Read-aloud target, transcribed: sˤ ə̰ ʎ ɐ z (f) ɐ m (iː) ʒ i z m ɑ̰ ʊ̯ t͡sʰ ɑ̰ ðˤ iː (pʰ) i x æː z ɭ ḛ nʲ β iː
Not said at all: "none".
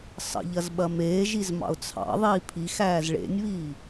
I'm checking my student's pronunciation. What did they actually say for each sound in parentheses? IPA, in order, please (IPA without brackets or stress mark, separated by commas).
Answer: ɓ, eː, pʰ